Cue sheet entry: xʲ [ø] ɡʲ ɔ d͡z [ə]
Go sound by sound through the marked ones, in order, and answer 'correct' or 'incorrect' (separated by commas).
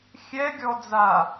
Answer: incorrect, incorrect